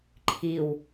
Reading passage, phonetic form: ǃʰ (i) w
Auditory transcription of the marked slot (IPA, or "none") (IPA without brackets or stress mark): i